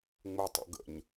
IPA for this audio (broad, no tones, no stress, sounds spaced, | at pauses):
ŋ͡m u tˤ ṵ ɡ ə̰ ɲ